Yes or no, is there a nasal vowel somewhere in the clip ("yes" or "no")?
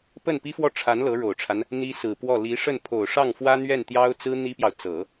no